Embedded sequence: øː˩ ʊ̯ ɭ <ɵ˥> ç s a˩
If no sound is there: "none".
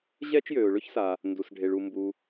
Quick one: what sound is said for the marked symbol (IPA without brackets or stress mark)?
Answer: ɵ˥